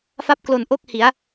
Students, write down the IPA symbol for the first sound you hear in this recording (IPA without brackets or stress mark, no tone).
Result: f